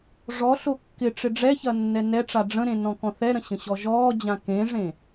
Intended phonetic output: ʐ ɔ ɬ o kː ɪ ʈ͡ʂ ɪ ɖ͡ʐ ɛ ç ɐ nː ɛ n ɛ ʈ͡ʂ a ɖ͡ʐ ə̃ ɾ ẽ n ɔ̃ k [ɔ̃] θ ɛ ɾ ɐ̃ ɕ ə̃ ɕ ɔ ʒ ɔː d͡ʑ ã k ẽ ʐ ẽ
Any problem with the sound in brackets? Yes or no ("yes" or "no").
no